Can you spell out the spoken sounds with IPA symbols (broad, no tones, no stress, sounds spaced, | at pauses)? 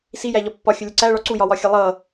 s i j æ ʎ ɒ pː ɒ xʲ ʊ lʲ ʌ ǀ æ ɭ ɒ ǀ u j ɒ w ɒ xʲ ʌ lˠ ʌ